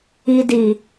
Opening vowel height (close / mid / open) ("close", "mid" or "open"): close